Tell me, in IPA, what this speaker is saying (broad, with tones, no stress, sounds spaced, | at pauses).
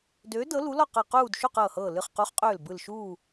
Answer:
d øː˨˥ d ɤ˨˥ l u˨˥ l ɔ˥˨ q ɤ˧˩ q uː˥˨ d ʃ u˥˨ q ɤː˧˩ h ɤː˧˩ l ɨ˧˩ χ q u˨˥ χ qʼ øː˧˩ l b ɯ˧˩ l ʃ uː˥˨